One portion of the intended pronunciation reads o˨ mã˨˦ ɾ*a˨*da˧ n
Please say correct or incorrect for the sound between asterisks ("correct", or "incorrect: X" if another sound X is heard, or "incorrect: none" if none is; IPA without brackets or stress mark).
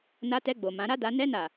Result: incorrect: a˦